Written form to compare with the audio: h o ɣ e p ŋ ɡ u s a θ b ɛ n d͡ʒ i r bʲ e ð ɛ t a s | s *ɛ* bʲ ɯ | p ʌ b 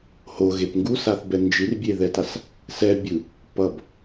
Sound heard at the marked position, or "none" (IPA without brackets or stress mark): ɛ